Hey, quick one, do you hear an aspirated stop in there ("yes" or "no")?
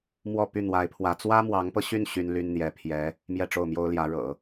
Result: yes